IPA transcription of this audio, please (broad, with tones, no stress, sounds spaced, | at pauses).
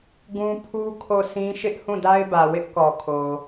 ɡ ũ˦ pʰ u˦ kʰ o˦˨ sʰ ĩ˦ ʃ ɪ˦ ʔ h ũ˦˨ d a˦ ɪ̯ b ä˨ w ɪ˦ ʔ k ɔ˨ kʰ o˨